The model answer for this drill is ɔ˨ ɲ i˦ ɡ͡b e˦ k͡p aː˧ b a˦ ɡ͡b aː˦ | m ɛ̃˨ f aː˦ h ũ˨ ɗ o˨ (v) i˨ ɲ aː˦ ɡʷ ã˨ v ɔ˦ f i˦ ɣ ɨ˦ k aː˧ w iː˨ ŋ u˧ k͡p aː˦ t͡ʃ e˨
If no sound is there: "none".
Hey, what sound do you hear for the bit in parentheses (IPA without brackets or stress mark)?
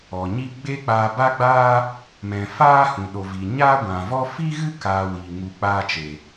v